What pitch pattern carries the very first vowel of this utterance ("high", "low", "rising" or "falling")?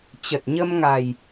low